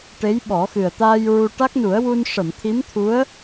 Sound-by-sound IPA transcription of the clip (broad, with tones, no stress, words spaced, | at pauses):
ʈe˧˥jɓɔ˨˩˦xɨ˨˩ə̯ t̪aː˧j ɹu˧ ʈa˦˥k̚nu˨˩˦ə̯wu˧n ʂə˨˩˨mt̪ʰi˧˥mt̪ʰu˧˥ə̯